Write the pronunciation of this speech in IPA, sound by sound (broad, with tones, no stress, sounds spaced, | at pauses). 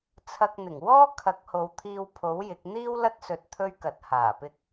t͡sʰ ɐ˧ k̚ n̪ ɪ˨˩ ŋ w ɔː˥ kʰ ɐ˨˥ k̚ h o˨˧ w t̪ʰ iː˧ w pʰ o˨˥ w j ɪ˨˥ k̚ n̪ iː˥ w l ɐ˥ t̚ s ɵ˧ t̚ t̪ʰ ɵ˥ ɥ k ɐ˨˥ t̚ h aː˨˩ p ɪ˧ k̚